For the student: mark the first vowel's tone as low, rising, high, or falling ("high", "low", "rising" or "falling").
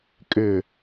low